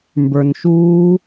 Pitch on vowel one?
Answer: low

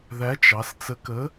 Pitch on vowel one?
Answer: rising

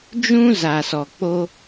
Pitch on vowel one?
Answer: high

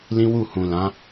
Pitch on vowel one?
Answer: high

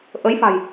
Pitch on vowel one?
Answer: rising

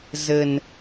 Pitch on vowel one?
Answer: low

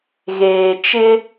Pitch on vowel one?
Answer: low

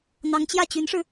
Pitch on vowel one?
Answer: rising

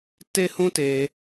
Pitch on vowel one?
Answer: high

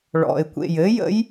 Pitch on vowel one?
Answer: low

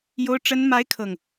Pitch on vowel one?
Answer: high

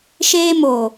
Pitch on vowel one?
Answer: high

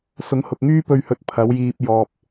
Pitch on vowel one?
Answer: rising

